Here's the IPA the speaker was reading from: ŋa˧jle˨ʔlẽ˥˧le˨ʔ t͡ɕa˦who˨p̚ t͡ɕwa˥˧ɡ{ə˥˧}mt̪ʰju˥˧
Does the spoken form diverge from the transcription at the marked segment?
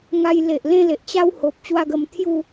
yes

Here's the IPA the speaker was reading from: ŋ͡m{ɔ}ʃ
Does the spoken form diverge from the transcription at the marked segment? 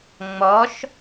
no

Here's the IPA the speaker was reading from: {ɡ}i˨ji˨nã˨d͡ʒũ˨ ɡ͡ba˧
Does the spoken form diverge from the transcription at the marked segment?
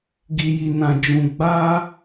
no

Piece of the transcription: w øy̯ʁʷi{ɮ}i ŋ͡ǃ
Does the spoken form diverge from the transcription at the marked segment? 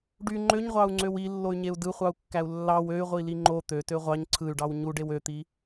yes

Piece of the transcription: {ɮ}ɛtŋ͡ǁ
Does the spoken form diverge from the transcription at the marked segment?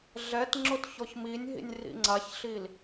no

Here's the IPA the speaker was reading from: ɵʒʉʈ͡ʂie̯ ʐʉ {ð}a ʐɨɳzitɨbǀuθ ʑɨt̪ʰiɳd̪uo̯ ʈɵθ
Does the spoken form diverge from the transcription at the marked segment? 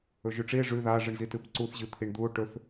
no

